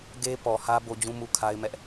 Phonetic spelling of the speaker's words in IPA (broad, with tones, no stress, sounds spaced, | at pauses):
ɡ e˦ p ɔ˨ h ä˦ b o˦ d͡ʑ ũ˦ m u˦ kʰ a˦ ɪ̯ m ɛ˦ ʔ